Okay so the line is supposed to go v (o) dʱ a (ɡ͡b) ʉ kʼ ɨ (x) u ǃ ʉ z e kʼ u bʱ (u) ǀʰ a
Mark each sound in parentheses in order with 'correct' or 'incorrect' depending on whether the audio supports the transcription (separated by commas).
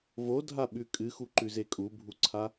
correct, incorrect, correct, correct